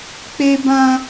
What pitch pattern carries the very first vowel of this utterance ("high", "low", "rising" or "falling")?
high